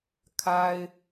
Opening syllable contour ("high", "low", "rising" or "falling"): high